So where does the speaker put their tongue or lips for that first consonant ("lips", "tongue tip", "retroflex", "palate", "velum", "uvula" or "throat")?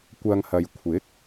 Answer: velum